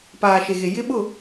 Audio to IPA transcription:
p aː˨ ʃ e˨ ɣ e˨ j ɪ˦ ɓ ʊ˦˨

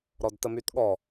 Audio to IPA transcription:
ɾ ɔ d t ə m y t ɠ ɔ

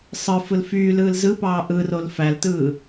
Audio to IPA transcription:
sˤ ɯ f ɯ l f yː l ɯː l z ɯ p ɑː ʔ ɯ r o l f æ l t ɯː

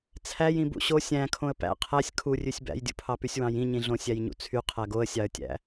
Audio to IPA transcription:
t͡sʰ æ j ĩ b ṵ ɕ o sʲ æ̃ kʰ õ ə̯ p æ̰ qʰ æ sʲ kʰ u rʲ ʉ sʲ b æ̰ j dʲ ṵ pʰ ɑ p y sʲ w ɑ̃ j ĩ ɲ ĩ ɮ õ sʲ æ j ɲ ṵ t͡sʰ y qʰ æ ɡ o ə̯ sʲ ɑ ə̯ tʲ æ̰

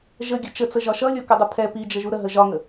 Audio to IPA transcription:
ʒ ə ɡʲ ə t͡ʃ ə t͡s ə ʒ ɒ ʃ ʌ lʲ ɔ k ə dˤ ə pʰ ɛ p i d͡ʒ ə ʒ u ɾ ə ɦ ə ʒ ɒ ŋ ə

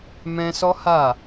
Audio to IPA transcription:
m ɛ̃˧ s ɔ˦ h a˦˨

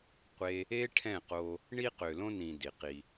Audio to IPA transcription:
qʷ e˦ | e˦ ʈʰ ɛ̃˦˨ q o˧ | ɳ i˧ q ø˨ l õ˧ n ĩ˨ d i˨ q i˧

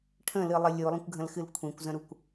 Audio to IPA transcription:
ʈʰ ə̃ l ɨ lˠ ə lʲ u lˠ ə̃ kʷ ɡʱ ə̃ l x ɨ l kʷʰ ĩ kʷ z ə̃ ɾ u kʷ

